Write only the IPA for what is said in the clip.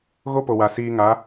ɣo˦po˨wa˨ siː˧ŋa˨˦

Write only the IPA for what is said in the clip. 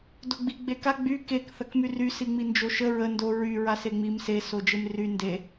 doɡ͡bi ɡ͡beka ɡ͡by kek θɐkmyry siŋ͡mind͡ʒoʃə ɹə ndo ɹy ɹaseŋ͡mim se sod͡ʒemry nde

